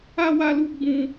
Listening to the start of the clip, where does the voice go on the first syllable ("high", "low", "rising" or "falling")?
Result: high